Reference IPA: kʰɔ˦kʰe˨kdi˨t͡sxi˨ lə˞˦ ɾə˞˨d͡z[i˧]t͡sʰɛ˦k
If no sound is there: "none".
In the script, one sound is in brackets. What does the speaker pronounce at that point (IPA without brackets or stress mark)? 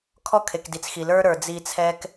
i˧